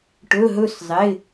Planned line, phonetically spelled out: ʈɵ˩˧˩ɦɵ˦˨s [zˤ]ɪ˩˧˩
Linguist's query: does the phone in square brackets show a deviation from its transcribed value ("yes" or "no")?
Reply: no